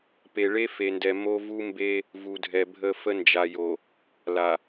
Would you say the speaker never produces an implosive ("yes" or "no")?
yes